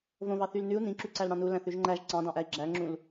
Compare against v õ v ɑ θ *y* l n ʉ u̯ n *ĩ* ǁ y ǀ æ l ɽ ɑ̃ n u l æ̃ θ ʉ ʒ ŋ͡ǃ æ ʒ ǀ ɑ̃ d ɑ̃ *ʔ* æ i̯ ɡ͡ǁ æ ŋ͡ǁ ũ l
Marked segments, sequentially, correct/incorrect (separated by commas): correct, correct, correct